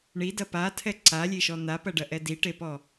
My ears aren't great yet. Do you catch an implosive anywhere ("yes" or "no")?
no